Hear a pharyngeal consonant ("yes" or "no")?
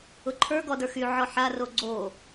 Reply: yes